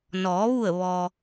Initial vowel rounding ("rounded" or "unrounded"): rounded